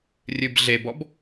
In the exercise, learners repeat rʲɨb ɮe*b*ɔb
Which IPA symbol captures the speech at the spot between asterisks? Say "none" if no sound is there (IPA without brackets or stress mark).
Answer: b